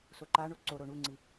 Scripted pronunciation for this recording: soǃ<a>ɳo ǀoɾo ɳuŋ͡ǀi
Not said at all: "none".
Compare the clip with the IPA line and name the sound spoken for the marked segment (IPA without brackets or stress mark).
a